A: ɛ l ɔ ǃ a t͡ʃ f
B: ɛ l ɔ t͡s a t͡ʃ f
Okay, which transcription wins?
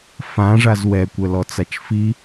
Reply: B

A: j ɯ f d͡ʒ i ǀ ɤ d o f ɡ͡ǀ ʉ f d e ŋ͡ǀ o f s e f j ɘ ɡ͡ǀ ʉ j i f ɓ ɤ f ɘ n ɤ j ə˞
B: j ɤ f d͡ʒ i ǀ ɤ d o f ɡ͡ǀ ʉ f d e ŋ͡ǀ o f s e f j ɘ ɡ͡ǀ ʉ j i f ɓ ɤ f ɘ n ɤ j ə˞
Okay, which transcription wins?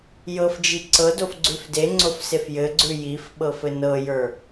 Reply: B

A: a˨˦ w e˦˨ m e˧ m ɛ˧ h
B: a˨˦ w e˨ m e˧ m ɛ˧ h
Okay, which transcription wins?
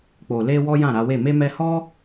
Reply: A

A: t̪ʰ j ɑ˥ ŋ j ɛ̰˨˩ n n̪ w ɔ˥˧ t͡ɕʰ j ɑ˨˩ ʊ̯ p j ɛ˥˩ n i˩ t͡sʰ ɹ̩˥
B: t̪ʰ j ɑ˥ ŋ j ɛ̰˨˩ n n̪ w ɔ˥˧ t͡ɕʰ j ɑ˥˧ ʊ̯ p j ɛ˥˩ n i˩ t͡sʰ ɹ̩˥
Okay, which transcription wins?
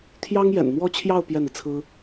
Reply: B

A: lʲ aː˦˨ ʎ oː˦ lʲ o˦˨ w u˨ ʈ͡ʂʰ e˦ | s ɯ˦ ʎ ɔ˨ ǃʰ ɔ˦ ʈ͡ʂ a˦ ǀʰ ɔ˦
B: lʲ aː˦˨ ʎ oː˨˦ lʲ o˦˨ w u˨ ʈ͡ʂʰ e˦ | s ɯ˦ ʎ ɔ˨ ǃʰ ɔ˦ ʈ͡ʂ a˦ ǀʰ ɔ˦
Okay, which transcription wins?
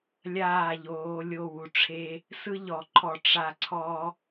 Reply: B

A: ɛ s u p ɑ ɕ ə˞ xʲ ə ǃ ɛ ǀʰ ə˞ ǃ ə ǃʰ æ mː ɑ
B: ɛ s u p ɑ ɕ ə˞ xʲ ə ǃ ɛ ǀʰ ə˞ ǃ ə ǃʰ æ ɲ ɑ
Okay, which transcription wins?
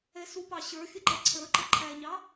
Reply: B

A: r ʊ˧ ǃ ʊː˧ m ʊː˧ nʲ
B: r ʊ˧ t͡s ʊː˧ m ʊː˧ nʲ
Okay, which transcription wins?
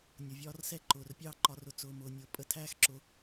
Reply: B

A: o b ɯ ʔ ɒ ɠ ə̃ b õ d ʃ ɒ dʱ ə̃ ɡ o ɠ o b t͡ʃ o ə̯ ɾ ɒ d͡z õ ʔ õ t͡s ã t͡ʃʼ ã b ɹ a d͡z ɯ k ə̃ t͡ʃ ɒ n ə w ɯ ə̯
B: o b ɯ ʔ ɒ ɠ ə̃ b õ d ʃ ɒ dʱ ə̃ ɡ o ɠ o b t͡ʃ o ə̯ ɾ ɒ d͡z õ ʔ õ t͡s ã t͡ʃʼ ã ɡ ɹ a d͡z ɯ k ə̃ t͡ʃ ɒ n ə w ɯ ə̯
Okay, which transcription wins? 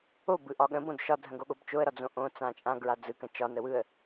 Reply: B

